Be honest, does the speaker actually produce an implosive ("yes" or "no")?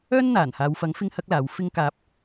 no